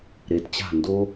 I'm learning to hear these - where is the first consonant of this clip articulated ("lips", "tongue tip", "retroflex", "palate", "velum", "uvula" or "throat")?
tongue tip